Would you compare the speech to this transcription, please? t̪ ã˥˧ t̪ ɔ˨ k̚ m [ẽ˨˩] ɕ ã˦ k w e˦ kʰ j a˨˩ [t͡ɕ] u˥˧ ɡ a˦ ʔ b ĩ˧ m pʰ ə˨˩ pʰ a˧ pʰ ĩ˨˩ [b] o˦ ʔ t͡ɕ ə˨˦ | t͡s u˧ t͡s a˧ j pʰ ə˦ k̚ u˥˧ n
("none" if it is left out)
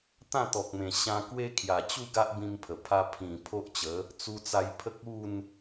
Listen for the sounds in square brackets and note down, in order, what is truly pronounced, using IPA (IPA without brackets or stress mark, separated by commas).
ẽ˨˩, t͡ɕ, pʰ